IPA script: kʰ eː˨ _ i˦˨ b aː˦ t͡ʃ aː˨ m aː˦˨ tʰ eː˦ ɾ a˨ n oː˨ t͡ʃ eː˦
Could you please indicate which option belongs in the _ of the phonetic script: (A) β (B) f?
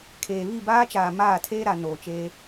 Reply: A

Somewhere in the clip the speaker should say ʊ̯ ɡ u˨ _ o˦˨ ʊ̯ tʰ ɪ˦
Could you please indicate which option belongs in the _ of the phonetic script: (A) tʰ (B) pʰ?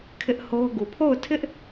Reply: B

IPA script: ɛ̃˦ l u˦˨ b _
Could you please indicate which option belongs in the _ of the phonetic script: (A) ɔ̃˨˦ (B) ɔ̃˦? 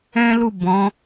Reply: A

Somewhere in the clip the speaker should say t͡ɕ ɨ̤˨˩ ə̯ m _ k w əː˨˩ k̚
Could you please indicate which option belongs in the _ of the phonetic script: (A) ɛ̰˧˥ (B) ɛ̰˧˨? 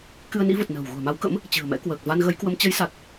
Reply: A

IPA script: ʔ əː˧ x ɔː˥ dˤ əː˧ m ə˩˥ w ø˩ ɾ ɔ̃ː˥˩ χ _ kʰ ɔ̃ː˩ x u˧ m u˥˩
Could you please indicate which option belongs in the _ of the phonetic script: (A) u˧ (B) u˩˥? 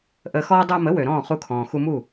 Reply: A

